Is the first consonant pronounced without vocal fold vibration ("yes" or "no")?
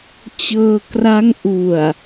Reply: yes